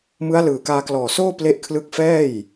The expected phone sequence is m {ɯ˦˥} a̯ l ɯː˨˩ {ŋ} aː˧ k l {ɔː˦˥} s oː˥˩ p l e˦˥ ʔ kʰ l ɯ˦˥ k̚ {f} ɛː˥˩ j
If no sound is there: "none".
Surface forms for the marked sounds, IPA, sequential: ɯ˦˥, k, ɔː˨˩, f

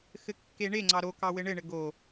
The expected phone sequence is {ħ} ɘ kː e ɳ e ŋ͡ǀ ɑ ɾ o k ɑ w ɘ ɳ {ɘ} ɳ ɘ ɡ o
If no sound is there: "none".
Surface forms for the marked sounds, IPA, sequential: x, ɘ

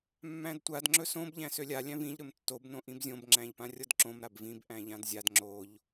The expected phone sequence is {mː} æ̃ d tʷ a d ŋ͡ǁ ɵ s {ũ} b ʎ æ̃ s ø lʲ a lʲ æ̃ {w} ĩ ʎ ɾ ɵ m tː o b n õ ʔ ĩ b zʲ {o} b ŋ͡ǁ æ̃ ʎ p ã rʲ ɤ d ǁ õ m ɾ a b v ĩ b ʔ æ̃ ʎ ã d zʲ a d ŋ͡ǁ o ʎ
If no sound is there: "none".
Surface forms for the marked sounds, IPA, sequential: mː, õ, v, õ

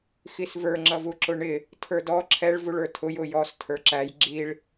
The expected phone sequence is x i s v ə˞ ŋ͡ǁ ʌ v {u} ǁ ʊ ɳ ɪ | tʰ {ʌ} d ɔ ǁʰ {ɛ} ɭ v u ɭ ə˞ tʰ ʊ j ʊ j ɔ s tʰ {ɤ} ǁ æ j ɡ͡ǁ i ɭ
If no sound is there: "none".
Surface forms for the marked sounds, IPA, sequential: u, ə˞, ɛ, ə˞

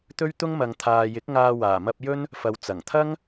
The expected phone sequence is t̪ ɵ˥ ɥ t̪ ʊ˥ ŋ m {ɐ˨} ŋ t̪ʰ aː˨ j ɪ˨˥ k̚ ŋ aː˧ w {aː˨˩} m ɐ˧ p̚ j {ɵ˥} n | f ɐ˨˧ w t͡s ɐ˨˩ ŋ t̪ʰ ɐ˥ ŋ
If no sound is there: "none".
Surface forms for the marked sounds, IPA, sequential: ɐ˧, aː˨˩, ɵ˥

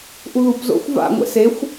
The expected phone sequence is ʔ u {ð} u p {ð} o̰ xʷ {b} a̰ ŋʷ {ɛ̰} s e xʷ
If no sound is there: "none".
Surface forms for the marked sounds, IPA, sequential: ð, z, v, ɛ̰

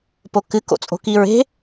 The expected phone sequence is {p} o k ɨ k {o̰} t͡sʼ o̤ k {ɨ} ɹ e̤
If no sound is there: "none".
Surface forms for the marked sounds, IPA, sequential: p, o̰, i

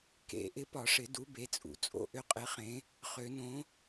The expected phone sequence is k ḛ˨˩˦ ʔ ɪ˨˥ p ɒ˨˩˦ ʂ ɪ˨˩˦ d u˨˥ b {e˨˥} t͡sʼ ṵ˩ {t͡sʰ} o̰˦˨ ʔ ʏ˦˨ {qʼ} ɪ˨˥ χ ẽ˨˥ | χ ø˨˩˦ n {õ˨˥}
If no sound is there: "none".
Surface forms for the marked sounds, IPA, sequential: e˨˥, t͡sʼ, qʼ, õ˨˥

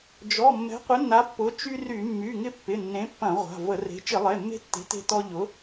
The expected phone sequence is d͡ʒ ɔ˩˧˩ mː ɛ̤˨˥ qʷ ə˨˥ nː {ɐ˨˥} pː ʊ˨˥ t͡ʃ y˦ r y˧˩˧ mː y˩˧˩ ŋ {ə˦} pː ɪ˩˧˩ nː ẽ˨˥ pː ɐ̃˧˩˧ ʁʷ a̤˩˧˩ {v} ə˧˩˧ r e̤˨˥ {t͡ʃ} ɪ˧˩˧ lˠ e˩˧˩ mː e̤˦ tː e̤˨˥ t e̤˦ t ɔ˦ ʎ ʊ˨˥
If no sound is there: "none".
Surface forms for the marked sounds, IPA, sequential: a˨˥, ɪ˦, v, t͡ʃ

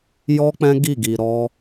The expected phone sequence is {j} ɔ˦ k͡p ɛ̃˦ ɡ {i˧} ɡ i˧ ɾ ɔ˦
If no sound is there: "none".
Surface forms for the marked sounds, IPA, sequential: j, i˦˨

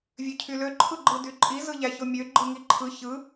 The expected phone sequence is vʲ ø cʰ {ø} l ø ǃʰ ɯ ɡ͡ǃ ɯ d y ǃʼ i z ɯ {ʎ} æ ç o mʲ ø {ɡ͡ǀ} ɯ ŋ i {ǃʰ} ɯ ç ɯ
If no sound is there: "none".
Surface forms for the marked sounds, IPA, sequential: y, ʎ, ɡ͡ǃ, ǃʰ

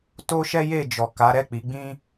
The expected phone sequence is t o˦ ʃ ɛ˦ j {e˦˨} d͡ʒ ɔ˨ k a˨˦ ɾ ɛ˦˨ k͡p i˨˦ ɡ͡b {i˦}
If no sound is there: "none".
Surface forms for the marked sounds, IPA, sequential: e˦˨, ĩ˦

